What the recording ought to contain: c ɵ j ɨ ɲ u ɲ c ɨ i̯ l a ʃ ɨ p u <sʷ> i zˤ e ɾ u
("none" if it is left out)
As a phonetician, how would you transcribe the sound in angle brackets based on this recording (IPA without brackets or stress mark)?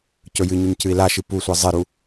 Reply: sʷ